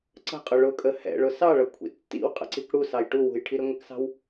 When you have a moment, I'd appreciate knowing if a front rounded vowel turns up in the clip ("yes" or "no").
no